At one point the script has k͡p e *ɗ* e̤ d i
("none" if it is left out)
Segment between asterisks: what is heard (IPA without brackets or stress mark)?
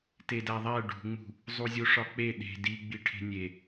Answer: ɗ